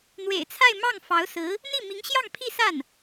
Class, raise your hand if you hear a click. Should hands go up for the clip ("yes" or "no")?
no